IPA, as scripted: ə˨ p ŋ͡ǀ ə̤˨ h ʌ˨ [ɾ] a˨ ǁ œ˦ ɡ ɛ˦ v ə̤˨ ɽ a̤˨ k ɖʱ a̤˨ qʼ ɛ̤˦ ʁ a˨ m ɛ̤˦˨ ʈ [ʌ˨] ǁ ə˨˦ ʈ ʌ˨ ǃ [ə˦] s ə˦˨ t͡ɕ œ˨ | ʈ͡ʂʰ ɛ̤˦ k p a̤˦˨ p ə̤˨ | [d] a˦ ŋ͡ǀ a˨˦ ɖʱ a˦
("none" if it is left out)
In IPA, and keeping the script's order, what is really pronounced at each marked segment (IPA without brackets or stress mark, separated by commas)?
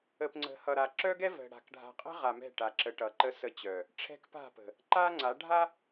ɾ, a˨, ə˦, ǃ